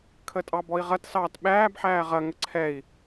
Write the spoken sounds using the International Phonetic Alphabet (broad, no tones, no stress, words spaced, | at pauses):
kʰətʼɑbɔi̯ʁɐt sɑːtɓæːb ħæːʁɐ ŋəǀʰɛi̯